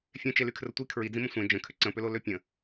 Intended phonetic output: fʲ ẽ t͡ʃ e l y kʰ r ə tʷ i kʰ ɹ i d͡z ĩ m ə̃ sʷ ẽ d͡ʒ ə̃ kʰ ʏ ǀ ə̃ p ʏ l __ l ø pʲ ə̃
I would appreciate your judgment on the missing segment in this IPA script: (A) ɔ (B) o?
B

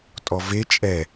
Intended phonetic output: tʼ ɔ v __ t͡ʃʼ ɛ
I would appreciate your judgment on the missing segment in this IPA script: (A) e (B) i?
A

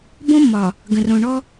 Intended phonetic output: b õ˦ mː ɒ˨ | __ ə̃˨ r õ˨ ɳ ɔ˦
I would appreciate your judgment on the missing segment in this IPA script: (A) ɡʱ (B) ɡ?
B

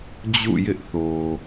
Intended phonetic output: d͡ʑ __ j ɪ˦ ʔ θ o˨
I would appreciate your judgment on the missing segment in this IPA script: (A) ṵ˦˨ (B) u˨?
A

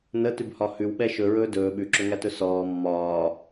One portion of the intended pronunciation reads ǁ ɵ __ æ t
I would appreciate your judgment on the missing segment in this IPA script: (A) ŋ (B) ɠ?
A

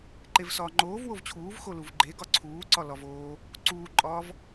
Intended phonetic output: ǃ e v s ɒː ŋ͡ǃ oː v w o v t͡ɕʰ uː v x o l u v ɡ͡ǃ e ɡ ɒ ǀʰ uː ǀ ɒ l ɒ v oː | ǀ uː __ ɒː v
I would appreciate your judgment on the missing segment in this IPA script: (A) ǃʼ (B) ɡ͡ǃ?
A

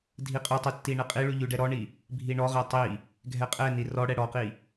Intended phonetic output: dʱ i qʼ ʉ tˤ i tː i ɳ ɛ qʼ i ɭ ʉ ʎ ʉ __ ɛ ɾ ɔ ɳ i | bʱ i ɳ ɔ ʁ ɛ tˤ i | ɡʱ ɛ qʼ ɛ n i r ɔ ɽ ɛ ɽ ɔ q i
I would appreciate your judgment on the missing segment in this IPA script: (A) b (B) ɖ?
B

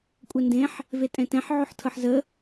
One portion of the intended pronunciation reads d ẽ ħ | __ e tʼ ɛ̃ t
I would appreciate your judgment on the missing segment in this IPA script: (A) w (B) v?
B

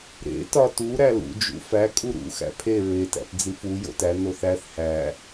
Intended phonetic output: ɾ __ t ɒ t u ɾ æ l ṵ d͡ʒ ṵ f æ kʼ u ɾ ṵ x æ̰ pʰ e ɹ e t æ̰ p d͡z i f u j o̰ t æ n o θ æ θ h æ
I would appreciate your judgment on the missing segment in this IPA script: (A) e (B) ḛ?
B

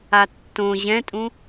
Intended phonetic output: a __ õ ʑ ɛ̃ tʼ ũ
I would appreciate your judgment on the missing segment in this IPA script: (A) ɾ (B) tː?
B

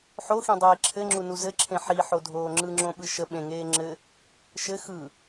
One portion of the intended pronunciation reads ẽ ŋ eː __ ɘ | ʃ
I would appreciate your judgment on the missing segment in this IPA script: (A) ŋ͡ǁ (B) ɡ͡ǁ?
A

